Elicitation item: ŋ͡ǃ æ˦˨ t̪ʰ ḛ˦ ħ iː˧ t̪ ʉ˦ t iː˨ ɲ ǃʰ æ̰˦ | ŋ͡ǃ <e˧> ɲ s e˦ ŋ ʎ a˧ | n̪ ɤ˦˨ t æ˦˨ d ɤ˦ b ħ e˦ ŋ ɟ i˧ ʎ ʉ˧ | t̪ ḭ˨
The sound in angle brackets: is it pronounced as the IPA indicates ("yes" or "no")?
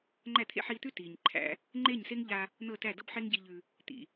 no